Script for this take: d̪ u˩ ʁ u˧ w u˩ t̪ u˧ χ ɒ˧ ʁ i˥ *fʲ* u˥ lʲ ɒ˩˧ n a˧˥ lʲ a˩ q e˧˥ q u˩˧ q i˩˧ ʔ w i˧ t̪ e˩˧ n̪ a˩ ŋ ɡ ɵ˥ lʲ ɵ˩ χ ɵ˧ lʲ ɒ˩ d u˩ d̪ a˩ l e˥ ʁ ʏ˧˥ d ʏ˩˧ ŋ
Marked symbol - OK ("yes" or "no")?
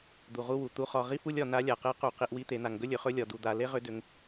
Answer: no